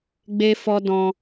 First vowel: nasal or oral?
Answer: oral